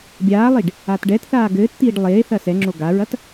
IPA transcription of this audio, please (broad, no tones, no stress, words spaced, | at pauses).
bʲaːlˠiɖ | atɖɛtθaː ɡɘːtt̪iːɖ lˠeː θɐsɛŋ͡ǁo ɡaɹɐt